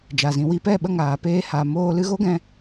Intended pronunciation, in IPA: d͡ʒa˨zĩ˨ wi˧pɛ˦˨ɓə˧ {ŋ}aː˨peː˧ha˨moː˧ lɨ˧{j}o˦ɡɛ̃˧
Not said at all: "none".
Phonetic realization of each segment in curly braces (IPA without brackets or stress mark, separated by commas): ŋ, ɣ